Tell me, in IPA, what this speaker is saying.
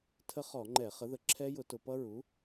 tʰə˦˥χɔ˧˩˧ŋ͡ǃɛ˧˩˧ χə˩˥ðə˩˥ ǁʰɛ˦˥jʊ˧˩˧tʊ˧˩˧ pʌ˦˥ɹu˩˥

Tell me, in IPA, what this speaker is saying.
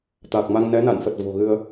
t̪a˨˩k̚ma˧ŋnɛ˨˦ na̰˧˨nfə˨˩t̚ vo̤˨˩ɣɨ˧ə̯

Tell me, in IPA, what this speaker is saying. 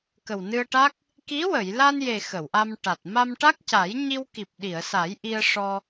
kə˨˩wnɨ˧ə̯ʈa˦˥k̚ | ki˧˥wə˨˩˨jla˧nje˨˩ xə˨˩˨wʔa˧m ʈa˨˩t̚ ma˧mʈa˦˥k̚ca˨˩˦j ɲi˧wki˨˩p̚ ɗi˨˩˨ə̯sa˨˩˦jʔi˧ə̯ ʂɔ˧

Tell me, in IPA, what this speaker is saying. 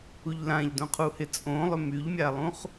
uʎlãʎdõ qʰuhɪ t͡sʼõlˠʏ myʎmʲalˠũχ

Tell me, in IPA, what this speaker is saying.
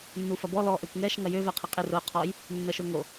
nːufɐbɔ lɔ ʔøkʷŋɛʃ ŋɐjøvɛ qʰɪqʼɪ rʊ qʰɔj | nːəʃʊŋo

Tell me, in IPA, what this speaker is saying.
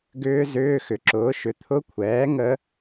ɡʏː˦˥zʏː˧˥˧ xʏ˨˩˦ǁʊː˩˥ ʃʏ˨t̪ʰʊ˧˥˧kʷʰɛː˩˥ ŋə˦˥

